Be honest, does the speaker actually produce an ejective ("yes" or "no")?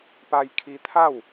no